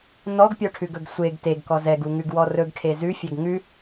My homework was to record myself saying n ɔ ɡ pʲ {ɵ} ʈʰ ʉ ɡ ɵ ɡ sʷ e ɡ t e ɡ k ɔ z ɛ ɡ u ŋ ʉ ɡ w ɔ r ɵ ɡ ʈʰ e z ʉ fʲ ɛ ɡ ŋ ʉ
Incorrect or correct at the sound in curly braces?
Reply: incorrect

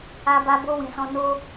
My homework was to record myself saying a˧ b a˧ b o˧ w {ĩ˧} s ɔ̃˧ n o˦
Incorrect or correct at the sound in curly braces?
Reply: incorrect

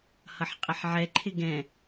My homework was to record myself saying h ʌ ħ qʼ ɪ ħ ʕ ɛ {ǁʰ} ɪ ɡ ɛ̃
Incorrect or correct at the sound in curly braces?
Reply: incorrect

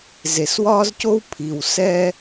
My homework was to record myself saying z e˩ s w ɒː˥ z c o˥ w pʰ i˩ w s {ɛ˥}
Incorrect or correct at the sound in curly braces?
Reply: correct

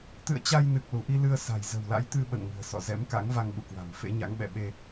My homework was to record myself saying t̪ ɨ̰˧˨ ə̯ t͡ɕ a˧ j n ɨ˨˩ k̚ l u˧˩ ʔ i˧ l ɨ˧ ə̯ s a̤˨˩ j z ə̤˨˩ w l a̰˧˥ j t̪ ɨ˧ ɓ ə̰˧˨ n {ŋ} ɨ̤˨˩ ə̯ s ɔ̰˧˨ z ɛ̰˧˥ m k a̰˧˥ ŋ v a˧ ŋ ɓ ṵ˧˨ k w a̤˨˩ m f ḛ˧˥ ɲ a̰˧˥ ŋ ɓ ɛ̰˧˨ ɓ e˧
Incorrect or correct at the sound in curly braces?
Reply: correct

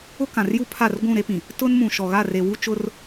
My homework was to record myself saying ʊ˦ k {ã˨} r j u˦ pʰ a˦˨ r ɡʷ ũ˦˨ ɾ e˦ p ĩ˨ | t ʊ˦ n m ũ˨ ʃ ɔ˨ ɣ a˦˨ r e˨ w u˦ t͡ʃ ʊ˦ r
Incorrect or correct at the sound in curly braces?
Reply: correct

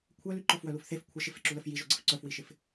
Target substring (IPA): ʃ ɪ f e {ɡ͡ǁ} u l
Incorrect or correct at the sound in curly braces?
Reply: incorrect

